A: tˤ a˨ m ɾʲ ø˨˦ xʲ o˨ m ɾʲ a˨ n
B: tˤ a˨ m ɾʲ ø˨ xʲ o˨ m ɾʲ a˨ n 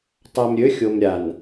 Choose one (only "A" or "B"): A